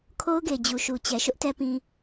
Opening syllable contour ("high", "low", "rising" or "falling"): high